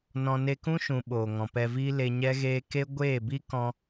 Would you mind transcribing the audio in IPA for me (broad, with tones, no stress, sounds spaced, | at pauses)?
n ɔ̃˧ n e˧ k ũ˦ ʃ ũ˨ ɓ oː˨ ŋ ɔ̃˨ p ɛ˧ v iː˦ l e˧ ɲ ɛ˦ ɣ eː˦ k e˦ ɡʷ eː˦˨ b i˦ k ɔ̃˧